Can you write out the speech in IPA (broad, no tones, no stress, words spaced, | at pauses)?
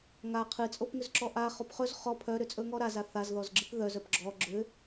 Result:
ŋa qʰɨt͡sʼopŋʏzǁɔ ʔa χopχɵz χɔ pʰœɾʏt͡sʼɵ ŋɔɾaza θazðɔzɡ͡ǁɨp ðœz œpɡ͡ǁɔ ɡ͡ǁʏ